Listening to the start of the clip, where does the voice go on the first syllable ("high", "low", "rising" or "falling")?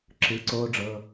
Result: rising